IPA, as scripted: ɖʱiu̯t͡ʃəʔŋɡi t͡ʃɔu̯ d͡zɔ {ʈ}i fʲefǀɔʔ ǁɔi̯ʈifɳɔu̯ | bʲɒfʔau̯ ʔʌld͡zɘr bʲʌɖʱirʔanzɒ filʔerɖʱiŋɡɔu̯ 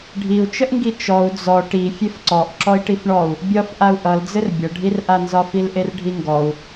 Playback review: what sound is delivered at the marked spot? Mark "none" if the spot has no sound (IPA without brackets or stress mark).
ʈ